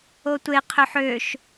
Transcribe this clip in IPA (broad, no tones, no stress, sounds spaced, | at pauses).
o tʷ e qʰ ø ħ ø ʃ